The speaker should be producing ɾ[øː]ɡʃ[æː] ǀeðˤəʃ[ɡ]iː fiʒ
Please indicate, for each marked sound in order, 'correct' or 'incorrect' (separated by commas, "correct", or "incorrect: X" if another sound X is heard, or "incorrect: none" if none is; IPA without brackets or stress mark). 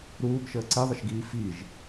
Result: incorrect: uː, incorrect: əː, correct